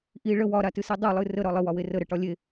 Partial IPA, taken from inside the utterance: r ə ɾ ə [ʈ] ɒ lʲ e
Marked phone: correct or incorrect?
correct